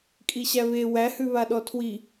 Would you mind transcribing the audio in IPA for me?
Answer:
kʼ i ɕ æ β e w æ h ʉ β a ɗ ɔ tʰ w i

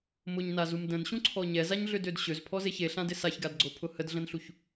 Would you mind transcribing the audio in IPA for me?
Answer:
m ʊ ɲ n a z u m d ə̃ n ɕ ũ ǀʰ ɔ ɲ ɛ z a ɲ ɮ ʏ d ø d ɕ ø z pʰ ɔ z e ç e ɬ ã d ɪ s a ç ɡ a d ɡ͡ǀ o pʰ ʊ h ə d ɮ ə̃ n ɬ u ç

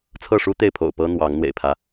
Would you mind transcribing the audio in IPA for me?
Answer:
t͡sʰ ɤ˥˨ ʂ u˦ t̪ e˥˨ ɪ̯ pʰ o̰˨˩ ʊ̯ p ɤ˦ n̪ w ɑ˨˦ ŋ n̪ w ḛ˨˩ ɪ̯ pʰ ä˦

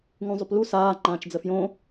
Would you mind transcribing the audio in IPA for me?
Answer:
ŋ ũ zˤ ʏ p l u s aː ŋ͡ǃ ãː t͡ʃ d͡z ə f j õ

